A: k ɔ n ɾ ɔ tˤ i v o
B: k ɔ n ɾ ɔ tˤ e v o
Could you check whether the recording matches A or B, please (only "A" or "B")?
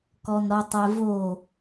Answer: B